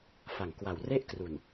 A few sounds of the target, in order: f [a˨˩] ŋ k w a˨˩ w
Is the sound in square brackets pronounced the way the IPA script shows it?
yes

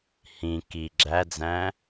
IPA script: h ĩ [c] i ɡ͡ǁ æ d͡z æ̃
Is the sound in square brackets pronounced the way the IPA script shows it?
no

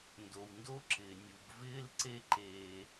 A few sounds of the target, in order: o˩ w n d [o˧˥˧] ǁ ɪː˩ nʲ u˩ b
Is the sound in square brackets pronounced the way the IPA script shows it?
yes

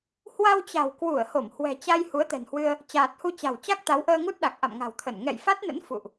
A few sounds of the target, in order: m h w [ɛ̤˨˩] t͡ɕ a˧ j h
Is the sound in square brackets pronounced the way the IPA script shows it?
yes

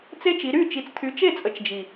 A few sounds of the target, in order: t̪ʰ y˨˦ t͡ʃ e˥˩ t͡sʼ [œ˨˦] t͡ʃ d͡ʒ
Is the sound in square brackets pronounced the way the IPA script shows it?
no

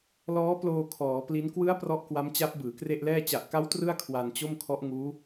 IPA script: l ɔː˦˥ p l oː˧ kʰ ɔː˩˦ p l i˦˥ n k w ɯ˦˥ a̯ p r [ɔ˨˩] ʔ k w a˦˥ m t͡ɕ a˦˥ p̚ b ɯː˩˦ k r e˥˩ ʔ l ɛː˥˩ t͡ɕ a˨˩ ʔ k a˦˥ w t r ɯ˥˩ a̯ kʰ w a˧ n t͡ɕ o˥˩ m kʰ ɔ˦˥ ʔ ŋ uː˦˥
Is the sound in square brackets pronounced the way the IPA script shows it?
no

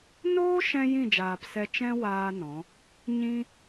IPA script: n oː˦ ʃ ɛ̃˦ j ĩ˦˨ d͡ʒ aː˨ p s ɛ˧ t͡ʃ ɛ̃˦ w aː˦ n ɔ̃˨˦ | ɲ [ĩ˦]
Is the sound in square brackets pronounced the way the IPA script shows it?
yes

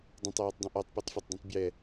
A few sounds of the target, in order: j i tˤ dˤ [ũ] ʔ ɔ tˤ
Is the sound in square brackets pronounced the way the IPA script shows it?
yes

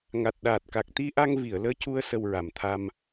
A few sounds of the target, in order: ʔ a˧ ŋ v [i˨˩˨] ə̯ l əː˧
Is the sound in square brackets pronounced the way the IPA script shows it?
yes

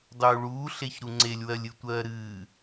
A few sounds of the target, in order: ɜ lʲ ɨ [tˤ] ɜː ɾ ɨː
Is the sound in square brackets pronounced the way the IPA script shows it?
no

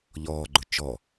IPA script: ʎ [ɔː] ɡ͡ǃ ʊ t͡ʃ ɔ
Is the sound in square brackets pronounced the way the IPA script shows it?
yes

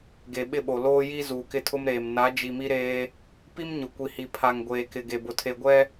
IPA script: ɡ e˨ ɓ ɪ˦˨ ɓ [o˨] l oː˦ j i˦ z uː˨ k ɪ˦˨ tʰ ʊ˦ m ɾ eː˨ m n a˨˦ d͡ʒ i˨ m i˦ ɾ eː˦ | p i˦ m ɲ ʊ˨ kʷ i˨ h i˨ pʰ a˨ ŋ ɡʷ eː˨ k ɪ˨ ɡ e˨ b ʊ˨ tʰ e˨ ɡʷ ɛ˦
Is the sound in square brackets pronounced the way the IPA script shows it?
yes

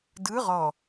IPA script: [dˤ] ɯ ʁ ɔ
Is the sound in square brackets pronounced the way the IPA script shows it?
no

